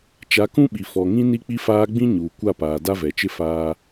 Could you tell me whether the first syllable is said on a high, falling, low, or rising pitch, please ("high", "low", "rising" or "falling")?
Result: rising